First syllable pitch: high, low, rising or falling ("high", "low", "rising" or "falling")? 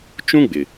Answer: high